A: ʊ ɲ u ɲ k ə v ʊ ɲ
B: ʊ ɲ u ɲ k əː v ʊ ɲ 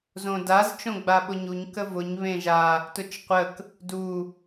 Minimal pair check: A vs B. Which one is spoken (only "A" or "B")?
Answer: A